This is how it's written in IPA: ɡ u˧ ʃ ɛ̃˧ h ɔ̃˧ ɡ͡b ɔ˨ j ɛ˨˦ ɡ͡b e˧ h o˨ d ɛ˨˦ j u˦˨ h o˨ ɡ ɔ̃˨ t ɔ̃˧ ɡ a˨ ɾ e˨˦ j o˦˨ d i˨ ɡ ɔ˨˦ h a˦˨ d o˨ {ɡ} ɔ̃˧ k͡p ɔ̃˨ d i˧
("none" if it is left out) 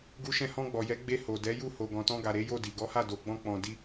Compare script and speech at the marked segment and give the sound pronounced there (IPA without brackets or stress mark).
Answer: ɡ͡b